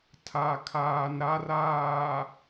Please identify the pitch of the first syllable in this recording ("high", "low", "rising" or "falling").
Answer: low